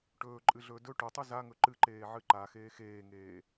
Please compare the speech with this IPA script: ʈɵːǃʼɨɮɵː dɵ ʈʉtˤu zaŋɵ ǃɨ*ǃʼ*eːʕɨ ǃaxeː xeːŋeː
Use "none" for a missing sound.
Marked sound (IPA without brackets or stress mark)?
ǃ